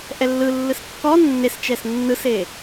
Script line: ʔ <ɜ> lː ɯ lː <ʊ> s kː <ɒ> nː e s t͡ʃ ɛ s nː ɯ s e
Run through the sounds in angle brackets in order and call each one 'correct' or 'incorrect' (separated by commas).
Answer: incorrect, incorrect, correct